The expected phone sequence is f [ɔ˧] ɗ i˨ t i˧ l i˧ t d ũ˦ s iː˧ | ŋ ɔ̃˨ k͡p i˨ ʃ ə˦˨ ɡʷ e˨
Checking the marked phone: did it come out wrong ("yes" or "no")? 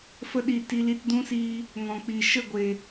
yes